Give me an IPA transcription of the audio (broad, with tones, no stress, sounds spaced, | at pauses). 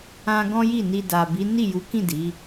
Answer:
ã˧ ɡ ɔ̃˦ j i˦˨ n i˧ d a˨ b i˨˦ n i˦˨ j u˨˦ k ĩ˦˨ d i˨˦